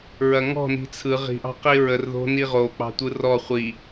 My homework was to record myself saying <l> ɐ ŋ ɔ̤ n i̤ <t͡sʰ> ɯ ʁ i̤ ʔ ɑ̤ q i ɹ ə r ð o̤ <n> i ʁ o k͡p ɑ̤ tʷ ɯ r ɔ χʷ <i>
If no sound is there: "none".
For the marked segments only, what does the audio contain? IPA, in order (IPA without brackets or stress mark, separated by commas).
ɹ, t͡sʰ, n, i